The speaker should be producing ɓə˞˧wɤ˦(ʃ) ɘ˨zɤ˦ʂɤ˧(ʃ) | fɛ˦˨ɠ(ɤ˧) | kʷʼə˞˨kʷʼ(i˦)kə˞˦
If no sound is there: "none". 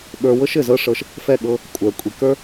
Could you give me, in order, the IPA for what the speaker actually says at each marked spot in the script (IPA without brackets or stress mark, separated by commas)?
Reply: ʃ, ʃ, ɤ˧, i˨